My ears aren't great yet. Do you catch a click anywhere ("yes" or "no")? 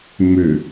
no